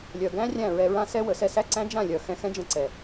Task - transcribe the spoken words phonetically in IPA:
lʲ œ˨ ɡ æ̃˦ rʲ æ̃˦˨ ɹ ɛ˧ ɹ ã˦ s ɛ˦ w ə˨˦ s ɛ˧ s æ˦ ǀ æ̃˦ d͡ʒ ã˦˨ lʲ œ˨ x ɛ̃˧ x ɛ̃˦ d͡ʒ ə̃˧ ǀ ɛ˨

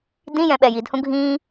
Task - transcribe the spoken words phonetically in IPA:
d ĩ j ɛ̃ ɓ ɛ j i d h ũ ɡʱ ĩ

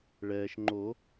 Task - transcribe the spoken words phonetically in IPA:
ɭ ɛː˩ ʃ ŋ͡ǃ o˨˩˦

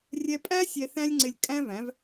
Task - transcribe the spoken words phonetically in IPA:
rʲ ɛ˧ pʼ æ˦ sʲ ɛ˧ θ æ̃˦ lʲ ŋ͡ǀ ɪ˧ lʲ kʼ æ̃˦ v æ̃˨˦ v

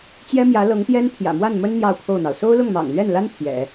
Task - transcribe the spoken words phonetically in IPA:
t͡ɕ j ɛ˥ m j ä˧˥ l ɤ˧˥ ŋ t̪ j ɛ˥ n pʰ j ä̰˨˩ m w a˥˩ n m ə˥ n n̪ j ɑ˥˧ ʊ̯ pʰ o˥˩ ʊ̯ n̪ ɑ˩ ʊ̯ s o˥ ʊ̯ l ʊ˥˩ ŋ m ɑ̰˨˩ ŋ l ɥ ɛ˥˩ n l a˥ n pʰ j ɛ̰˨˩˦

